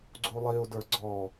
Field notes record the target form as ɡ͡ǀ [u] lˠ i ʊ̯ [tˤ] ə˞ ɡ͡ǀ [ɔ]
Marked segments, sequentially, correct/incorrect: correct, incorrect: d, correct

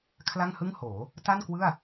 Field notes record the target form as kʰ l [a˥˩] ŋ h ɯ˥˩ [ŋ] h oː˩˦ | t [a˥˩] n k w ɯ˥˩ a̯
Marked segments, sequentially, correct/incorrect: correct, correct, correct

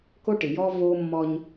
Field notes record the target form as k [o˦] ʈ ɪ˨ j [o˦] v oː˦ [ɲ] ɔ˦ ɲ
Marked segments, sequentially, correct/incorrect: correct, incorrect: ɔ˦, incorrect: mː

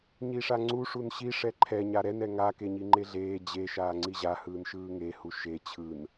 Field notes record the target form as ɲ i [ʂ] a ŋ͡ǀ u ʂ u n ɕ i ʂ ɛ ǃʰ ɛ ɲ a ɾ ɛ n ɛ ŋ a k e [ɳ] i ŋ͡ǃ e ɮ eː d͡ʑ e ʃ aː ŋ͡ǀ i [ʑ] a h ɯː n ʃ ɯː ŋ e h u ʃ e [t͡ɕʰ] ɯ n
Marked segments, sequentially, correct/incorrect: correct, incorrect: ɲ, correct, correct

